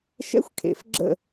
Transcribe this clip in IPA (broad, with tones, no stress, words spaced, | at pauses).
ʃɛ̰˥xʷkʰḛ˩˧˩f ɡ͡ǁə̰˥˧